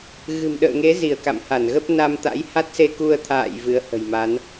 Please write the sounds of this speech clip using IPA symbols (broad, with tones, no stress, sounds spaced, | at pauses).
ɣ ɨ̤˨˩ m ɗ ə̰ː˧˨ ŋ e˨˦ z i˧˩ ə̯ k a̰˧˨ m h a˧˩ n ɣ ə˦˥ p̚ n a˧ m t̪ a̰˧˥ j h a˦˥ t̚ s e˧ k u˧ ə̯ t̪ʰ a̰ː˧˨ j v ɨ˨˦ ə̯ h ə̤˨˩ j m a˨˦ n